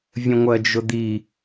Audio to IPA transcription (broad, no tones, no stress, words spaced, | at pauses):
vʲə̃ŋʷɜd͡ʒʊd̪i